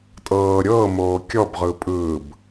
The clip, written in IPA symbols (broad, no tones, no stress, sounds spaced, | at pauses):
tʼ ɤː ɾʲ ɤː m oː kʲ ɔ b ʁ ɯ pʼ ɯː b